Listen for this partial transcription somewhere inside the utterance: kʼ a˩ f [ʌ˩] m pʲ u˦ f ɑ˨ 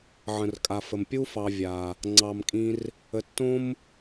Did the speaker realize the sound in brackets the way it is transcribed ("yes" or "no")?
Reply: no